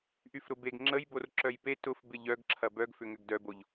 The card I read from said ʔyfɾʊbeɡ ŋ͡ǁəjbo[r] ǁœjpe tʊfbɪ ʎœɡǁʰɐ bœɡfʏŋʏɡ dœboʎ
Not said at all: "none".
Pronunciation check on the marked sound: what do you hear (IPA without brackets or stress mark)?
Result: r